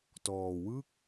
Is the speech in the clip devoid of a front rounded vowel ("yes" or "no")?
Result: yes